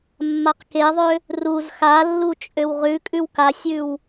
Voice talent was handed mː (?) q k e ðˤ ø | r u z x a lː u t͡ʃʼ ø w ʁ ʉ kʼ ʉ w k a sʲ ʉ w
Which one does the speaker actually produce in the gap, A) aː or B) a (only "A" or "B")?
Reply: B